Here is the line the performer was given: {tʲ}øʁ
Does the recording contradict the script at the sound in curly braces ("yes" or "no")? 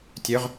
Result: no